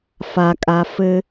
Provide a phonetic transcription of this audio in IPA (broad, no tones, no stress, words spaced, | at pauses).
fakʼa fɘ